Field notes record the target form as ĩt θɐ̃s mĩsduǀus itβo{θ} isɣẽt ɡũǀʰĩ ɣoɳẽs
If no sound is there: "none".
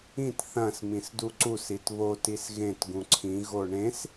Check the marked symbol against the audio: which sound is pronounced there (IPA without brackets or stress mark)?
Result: t